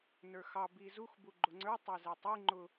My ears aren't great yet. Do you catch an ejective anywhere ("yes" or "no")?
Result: no